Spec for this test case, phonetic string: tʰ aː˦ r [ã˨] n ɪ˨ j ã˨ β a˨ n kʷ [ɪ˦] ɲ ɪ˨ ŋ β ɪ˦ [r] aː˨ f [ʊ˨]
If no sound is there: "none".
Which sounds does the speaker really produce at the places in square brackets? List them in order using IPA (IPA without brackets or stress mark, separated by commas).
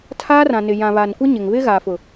ã˨, ɪ˦, ɣ, ʊ˨